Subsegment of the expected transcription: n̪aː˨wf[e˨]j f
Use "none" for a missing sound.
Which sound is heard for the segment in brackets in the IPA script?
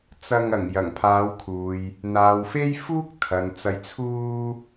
e˥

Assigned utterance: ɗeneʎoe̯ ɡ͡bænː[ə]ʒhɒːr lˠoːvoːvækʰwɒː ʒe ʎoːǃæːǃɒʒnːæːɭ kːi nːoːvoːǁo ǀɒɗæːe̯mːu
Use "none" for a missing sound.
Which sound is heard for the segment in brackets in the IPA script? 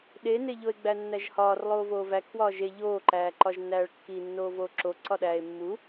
æ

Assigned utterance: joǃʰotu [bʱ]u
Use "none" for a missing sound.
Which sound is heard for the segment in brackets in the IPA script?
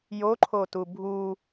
bʱ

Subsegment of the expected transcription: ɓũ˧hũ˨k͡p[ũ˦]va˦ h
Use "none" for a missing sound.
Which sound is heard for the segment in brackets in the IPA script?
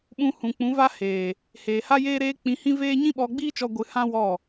ũ˨˦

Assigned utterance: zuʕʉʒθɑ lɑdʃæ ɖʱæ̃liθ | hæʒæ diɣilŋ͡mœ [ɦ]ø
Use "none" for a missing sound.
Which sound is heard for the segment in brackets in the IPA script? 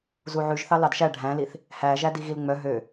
ɦ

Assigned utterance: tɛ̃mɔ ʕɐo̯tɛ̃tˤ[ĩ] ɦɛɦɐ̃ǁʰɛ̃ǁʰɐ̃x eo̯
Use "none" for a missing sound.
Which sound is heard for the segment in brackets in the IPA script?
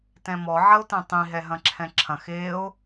ĩ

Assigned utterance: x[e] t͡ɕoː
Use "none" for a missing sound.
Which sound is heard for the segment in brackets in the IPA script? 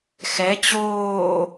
ɛ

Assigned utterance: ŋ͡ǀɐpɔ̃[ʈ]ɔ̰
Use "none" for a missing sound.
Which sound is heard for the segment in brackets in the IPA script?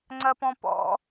p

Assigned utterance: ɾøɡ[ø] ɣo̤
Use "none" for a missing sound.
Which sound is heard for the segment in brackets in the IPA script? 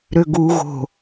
u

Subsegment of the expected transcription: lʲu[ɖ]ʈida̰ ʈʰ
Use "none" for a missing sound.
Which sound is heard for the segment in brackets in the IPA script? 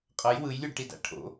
ɖ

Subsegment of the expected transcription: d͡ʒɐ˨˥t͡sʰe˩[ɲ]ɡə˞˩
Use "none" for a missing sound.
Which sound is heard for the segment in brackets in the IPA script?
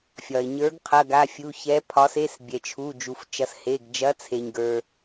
ɲ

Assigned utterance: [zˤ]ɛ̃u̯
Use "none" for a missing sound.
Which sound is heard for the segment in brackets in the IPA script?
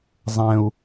zˤ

